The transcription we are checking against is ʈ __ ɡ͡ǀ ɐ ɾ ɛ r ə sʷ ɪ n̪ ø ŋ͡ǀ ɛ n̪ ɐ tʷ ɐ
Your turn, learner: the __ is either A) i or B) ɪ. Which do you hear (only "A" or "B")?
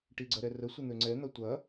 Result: A